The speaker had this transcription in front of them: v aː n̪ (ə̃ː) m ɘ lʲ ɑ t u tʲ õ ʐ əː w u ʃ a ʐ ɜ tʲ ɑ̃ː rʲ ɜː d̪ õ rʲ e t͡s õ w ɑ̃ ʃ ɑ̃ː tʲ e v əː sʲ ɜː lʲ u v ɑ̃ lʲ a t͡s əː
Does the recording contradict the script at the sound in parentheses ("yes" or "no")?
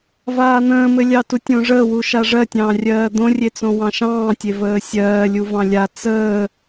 no